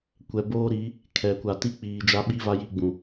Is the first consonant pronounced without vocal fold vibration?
yes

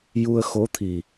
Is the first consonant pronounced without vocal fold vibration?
no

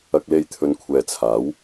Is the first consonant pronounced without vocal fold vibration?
yes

